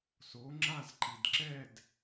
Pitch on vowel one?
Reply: rising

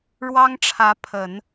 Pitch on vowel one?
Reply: high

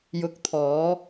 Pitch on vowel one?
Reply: rising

